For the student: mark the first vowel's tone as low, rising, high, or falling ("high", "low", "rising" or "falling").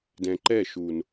low